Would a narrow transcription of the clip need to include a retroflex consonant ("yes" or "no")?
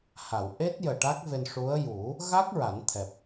yes